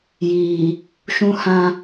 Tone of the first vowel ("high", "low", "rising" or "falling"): low